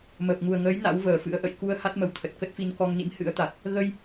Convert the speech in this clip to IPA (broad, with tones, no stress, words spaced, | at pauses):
məː˨˩p̚ŋu˨˩ə̯ŋəː˨˦j na̰˧˥wvəː˨˩fɨ̰˧˥ə̯ʔə̰˧˨j ku˧ə̯ ha˦˥t̚mə˨˦wt̪ʰə˨˩t̚ kə˦˥t̚fi˧n kɔ˧ŋnḭ˧˥m hɨ̰˧˥ə̯t̪a˨˩t̚ | ɣə˧j